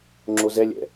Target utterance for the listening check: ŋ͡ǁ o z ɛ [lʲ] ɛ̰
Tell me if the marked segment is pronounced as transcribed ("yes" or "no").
yes